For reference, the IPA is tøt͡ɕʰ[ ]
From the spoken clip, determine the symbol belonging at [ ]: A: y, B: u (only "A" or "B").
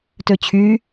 A